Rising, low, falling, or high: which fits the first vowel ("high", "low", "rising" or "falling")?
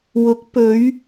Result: rising